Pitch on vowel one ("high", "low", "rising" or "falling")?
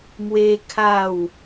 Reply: high